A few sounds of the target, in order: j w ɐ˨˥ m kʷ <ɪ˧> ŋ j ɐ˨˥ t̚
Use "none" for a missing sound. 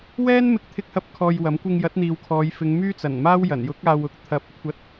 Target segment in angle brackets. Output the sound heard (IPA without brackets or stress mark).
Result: ɪ˧